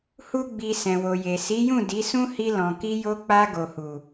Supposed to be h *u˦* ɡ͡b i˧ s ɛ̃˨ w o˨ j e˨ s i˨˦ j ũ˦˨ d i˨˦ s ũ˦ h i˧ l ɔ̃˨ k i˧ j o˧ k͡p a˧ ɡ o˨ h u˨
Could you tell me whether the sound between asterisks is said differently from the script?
no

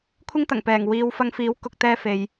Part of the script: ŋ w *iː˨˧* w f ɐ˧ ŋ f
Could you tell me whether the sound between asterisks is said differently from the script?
no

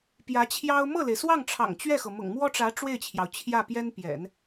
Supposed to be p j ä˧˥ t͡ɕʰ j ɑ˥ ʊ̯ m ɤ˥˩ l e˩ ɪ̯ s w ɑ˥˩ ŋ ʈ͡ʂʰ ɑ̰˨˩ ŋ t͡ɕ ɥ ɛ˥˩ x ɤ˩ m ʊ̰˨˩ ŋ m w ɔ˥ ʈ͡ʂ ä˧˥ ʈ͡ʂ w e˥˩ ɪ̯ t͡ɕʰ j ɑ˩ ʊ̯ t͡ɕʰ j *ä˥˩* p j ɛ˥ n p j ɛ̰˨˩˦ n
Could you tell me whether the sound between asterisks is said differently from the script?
no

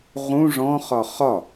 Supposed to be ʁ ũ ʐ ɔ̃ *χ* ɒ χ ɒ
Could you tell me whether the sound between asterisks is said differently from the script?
no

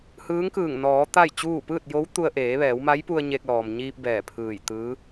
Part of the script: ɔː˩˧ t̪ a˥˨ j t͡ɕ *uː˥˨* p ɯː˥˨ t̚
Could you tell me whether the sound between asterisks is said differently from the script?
no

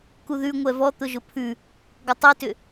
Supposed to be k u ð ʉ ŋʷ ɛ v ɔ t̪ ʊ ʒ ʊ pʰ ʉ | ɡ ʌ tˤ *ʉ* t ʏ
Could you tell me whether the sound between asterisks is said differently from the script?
no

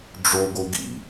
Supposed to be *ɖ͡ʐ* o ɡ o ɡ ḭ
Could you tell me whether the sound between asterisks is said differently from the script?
no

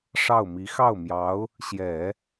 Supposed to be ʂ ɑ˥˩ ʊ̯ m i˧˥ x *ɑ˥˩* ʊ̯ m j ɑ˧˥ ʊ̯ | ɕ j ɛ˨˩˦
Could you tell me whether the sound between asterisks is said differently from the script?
no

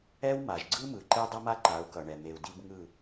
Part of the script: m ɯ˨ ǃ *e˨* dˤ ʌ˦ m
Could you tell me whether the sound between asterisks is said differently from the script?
yes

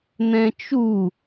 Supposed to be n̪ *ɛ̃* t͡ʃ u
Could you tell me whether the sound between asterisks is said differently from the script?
no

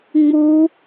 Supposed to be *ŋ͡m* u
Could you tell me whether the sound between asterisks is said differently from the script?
no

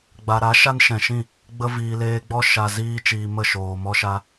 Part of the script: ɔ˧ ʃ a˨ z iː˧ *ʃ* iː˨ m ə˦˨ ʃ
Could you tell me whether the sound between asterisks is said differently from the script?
yes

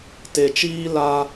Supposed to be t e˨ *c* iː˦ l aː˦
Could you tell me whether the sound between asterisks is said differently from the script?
yes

